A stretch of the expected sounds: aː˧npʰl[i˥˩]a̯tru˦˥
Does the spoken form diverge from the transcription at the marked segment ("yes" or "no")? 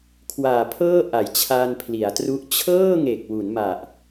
yes